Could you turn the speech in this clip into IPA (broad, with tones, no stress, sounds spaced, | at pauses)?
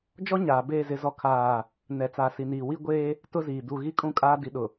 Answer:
d͡ʒ ɔ˦ ɲ aː˨ b eː˦˨ z ɪ˦ z ɔ˦ kʰ aː˦˨ | n ɛ˨ t͡s a˨ s i˨ n iː˨ w i˦ ɡʷ eː˦ | t ʊ˦ z iː˨ d u˨ ɣ i˦ kʼ ũ˦ kʼ aː˦ d i˨ ɗ ʊ˨